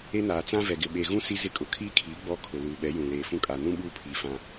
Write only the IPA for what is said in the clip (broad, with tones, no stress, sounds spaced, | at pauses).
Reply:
e˦ n aː˨ t͡s ã˦ v ɛ˨ ɡ ɪ˨ ɓ eː˨ ɣ ũ˦ s i˦ z ɪ˦˨ kʼ ʊ˨ kʰ iː˦ kʰ iː˨˦ ɡ͡b ɔ˦ kʰ ʊ˨ l uː˨ ɓ ɛ˨˦ j ũ˨ l eː˨ f ũ˦ kʼ aː˨ n ũ˦ ɓ uː˦ pʰ iː˨ f ã˦